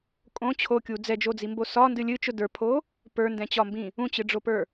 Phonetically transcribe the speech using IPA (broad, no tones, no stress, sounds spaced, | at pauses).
kʼ õ t͡ɕʰ o kʲ u d͡z ɛ d͡ʒ o d͡z i m b o s ɒ n d ɨ lʲ ɨ t͡ʃ ʊ d ə˞ pʰ o | p ə˞ n d ɛ̃ t͡ɕ ɒ m b ĩ | ũ t͡ɕ ɨ ɖ͡ʐ o p ə˞